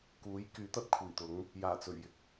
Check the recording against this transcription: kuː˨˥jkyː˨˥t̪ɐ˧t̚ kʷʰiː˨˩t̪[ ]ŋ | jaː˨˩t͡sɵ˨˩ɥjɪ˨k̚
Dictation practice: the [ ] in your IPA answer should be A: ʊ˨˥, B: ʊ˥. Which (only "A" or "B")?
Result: A